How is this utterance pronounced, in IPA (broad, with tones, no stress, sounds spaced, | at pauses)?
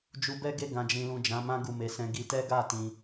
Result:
d͡ʒ u˧ b ɛ˦ ɡ e˦˨ ɡ ã˨ d͡ʒ ĩ˨ l ũ˨ d͡ʒ ã˨˦ m ã˦ ɡ u˦˨ m e˧ s ɛ̃˦ ɡ i˧ t ɛ˦ ɡ a˦˨ t ĩ˧